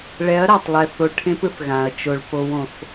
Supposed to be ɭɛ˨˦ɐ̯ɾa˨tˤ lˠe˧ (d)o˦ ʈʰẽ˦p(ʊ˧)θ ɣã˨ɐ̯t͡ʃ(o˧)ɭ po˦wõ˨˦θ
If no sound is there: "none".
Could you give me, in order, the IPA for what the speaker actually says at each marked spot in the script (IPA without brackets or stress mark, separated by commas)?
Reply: θ, ɯ˧, o˧